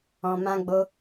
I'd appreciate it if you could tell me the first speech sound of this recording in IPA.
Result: ɔ̃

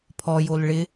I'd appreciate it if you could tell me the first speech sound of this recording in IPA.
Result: pʰ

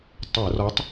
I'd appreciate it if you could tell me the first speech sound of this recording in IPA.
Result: tˤ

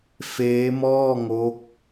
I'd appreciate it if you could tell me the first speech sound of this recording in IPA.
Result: f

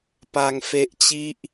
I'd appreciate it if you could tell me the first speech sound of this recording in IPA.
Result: p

